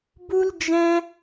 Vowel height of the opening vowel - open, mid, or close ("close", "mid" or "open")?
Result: close